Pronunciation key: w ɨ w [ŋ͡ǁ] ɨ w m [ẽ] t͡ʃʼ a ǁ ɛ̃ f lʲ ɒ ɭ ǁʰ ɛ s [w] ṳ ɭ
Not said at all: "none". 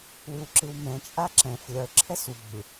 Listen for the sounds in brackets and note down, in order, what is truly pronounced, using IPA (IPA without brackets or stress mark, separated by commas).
ǁ, ɛ̃, w